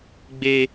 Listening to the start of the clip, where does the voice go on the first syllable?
high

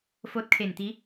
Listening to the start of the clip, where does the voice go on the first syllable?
rising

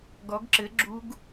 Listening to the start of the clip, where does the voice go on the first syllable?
rising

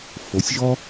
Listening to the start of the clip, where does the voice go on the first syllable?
rising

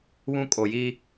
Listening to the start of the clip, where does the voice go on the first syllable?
high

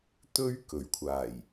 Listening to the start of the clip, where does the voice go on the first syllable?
high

